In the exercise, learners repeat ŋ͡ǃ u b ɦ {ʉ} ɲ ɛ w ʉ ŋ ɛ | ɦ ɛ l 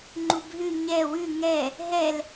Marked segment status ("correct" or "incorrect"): correct